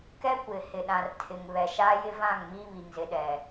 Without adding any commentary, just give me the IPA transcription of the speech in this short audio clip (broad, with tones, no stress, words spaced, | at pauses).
kɛ˦kʷɪ˨ hɪ˨ɗã˨r tʰɪ˨ŋβɛ˨ ʃa˦jɪ˦vã˦˨ŋ mi˦βi˨ŋzɪ˨ ɗɛ˨